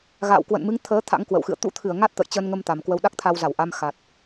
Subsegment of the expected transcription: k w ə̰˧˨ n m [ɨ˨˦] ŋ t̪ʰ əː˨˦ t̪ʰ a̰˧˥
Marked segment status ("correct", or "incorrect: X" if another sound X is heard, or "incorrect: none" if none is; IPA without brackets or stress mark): correct